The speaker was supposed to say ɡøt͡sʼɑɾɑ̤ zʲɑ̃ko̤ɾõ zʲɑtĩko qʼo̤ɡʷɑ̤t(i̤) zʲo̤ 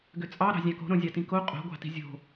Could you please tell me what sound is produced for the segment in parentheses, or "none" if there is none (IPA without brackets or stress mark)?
i̤